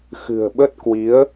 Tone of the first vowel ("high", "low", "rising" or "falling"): low